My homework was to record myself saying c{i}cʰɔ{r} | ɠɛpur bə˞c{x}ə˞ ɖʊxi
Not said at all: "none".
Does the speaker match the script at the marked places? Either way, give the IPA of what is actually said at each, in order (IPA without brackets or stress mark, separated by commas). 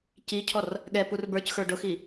i, r, x